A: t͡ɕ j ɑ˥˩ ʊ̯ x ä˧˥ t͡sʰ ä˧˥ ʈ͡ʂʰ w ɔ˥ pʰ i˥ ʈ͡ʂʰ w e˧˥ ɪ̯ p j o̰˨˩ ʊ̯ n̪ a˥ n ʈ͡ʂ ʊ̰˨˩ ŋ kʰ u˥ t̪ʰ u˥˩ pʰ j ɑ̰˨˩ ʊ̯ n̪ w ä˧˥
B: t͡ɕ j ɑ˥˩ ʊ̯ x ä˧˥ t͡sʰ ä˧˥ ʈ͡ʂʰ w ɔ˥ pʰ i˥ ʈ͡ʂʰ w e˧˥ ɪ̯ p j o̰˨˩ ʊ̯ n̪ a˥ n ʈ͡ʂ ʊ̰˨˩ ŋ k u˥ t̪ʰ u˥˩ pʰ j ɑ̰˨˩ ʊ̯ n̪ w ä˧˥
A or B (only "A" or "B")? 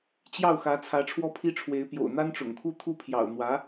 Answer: A